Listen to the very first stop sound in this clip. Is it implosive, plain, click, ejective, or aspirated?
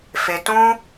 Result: plain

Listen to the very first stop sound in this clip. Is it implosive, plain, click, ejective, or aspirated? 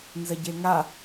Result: plain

